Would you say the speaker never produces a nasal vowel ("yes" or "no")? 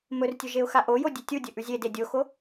yes